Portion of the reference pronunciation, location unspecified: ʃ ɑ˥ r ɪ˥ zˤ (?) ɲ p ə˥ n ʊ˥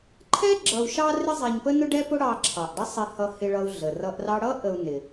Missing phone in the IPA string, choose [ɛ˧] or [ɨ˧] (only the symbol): ɛ˧